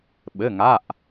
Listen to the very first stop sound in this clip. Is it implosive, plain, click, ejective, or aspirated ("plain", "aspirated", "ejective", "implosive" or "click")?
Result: implosive